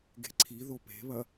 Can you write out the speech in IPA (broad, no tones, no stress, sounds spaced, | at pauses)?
ɡ e̤ ǀʰ i ð o p e̤ β ɐ